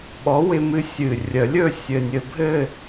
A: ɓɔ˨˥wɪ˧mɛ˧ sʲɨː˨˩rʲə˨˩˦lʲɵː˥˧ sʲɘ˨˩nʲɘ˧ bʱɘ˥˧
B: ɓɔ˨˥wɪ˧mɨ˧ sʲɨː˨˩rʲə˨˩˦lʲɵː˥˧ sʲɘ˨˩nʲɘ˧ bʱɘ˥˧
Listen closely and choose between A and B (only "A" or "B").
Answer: B